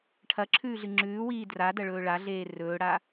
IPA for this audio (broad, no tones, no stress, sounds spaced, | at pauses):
ʈʰ ɐ ǁʰ ʉː ɮ ɨ ŋ͡ǁ ʉː w iː d r a d ɐ ɭ ɵː ɭ a ɮ eː r ɵː ɽ a